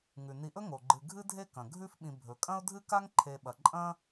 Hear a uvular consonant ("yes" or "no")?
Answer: no